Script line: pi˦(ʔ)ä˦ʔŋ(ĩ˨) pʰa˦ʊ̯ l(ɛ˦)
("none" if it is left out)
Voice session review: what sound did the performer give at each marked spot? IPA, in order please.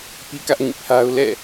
k, ĩ˦˨, ɛ̰˦˨

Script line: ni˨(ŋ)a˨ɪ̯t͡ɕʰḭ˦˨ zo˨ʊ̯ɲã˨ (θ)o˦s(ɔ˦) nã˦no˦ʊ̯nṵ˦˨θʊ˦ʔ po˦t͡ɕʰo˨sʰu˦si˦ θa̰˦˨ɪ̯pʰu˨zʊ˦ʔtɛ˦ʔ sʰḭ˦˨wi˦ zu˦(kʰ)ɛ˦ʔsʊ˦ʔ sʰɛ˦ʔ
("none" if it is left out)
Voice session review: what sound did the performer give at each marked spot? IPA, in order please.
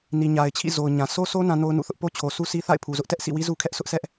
ɲ, s, o˦, kʰ

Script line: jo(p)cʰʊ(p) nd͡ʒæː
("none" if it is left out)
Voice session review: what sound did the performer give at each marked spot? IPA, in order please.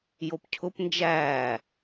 p, p

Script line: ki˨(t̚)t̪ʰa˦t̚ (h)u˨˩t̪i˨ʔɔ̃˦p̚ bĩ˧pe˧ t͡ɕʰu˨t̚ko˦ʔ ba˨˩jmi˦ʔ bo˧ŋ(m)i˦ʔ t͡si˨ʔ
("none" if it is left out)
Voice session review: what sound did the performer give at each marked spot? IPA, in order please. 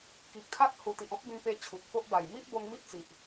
k̚, h, m

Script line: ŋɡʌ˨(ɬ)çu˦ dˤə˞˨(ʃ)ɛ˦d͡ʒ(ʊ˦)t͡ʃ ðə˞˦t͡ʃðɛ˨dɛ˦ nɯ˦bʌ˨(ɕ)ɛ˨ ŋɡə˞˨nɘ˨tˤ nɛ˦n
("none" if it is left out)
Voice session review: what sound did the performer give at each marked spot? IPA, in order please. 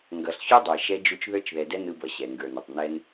ɬ, ʃ, u˦, ɕ

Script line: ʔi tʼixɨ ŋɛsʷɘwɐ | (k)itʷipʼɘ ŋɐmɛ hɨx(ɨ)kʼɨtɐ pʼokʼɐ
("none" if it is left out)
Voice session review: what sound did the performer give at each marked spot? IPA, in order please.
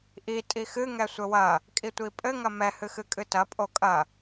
kʼ, ɨ

